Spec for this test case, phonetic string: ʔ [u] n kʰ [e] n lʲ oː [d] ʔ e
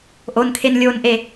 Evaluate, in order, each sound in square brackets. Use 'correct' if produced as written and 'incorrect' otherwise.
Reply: incorrect, correct, incorrect

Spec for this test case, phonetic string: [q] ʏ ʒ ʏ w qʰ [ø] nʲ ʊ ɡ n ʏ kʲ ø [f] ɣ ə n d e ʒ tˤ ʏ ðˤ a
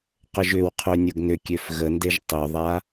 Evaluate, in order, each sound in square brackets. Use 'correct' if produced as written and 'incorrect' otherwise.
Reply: correct, correct, correct

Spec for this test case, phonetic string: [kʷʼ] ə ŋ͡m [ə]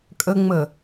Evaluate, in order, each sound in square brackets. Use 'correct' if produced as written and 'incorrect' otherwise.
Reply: incorrect, correct

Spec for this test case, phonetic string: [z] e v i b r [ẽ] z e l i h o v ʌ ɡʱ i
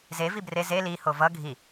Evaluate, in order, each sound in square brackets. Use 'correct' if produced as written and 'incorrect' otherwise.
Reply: correct, incorrect

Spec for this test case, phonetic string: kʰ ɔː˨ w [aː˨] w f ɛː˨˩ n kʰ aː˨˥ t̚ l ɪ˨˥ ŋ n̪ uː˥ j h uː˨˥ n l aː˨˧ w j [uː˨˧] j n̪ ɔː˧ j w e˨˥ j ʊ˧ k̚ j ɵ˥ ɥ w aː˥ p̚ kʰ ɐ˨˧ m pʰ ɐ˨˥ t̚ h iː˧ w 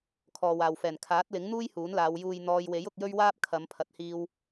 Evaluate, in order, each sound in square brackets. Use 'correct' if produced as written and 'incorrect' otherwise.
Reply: correct, incorrect

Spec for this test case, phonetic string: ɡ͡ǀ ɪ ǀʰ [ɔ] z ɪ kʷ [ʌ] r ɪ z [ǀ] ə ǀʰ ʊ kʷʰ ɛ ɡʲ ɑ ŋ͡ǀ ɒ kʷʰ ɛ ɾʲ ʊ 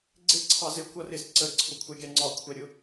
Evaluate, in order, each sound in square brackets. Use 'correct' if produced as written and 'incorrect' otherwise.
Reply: incorrect, correct, correct

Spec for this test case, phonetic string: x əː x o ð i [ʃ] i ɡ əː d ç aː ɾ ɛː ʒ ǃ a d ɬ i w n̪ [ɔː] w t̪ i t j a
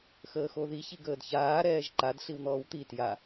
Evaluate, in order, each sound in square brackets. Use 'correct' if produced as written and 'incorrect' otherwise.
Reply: incorrect, correct

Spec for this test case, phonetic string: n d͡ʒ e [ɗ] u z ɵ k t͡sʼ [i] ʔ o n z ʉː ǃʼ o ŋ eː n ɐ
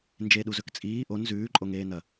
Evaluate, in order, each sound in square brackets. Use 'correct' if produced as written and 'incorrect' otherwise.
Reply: correct, incorrect

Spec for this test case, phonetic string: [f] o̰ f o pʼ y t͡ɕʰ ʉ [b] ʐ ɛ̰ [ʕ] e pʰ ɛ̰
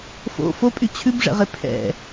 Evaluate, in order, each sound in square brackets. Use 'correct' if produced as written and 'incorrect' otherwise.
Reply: correct, correct, incorrect

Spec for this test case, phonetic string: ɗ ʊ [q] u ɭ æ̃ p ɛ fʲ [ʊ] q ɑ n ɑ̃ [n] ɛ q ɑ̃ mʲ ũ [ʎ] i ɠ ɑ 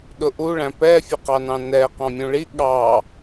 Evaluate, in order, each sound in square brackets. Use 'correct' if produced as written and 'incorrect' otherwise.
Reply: incorrect, incorrect, correct, incorrect

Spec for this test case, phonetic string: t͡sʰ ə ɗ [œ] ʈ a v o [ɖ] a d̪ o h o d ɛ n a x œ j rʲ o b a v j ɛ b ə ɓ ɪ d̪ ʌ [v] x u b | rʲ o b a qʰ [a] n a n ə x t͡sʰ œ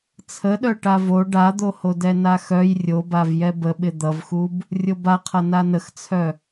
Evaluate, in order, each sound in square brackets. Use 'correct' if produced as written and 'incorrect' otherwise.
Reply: correct, correct, correct, incorrect

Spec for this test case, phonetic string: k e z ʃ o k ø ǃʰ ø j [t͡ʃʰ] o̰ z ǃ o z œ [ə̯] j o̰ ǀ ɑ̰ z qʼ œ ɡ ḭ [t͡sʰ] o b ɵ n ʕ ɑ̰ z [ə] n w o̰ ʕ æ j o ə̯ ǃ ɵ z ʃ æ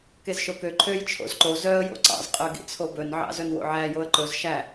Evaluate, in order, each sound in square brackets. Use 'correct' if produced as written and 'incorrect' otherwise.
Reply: correct, correct, correct, incorrect

